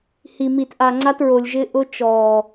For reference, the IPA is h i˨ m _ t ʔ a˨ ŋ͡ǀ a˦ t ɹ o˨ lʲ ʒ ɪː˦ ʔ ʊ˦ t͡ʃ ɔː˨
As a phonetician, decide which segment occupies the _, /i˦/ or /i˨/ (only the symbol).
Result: i˨